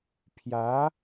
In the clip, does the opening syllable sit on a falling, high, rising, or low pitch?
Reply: rising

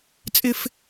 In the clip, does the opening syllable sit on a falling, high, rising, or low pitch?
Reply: high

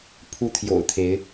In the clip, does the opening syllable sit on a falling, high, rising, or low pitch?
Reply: high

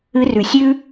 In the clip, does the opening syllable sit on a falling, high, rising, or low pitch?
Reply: rising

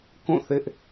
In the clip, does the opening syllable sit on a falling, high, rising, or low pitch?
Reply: falling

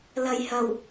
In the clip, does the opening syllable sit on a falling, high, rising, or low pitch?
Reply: low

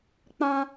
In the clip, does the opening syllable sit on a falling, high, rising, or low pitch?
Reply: high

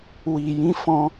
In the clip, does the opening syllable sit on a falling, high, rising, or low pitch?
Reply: low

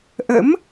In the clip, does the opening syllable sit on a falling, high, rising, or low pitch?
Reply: rising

